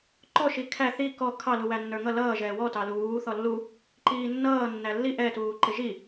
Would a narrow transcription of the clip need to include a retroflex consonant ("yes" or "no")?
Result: no